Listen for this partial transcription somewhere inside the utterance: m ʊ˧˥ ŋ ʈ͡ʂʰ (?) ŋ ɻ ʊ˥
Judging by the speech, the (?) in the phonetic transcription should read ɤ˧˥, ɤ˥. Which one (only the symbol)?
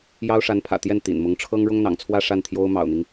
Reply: ɤ˥